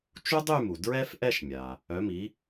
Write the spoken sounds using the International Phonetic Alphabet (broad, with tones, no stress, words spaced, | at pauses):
t͡ʃu˥dˤy˥˧mu˩ dɹɛ˥fʔɛ˥˧ʃmʲa˩ | œ˩˥mi˩˥